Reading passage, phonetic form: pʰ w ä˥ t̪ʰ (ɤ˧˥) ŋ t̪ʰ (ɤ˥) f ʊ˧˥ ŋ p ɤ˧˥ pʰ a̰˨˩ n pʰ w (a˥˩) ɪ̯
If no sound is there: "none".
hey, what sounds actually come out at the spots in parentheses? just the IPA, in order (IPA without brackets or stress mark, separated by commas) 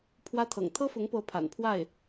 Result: ɤ̰˨˩, ɤ˥, a˥˩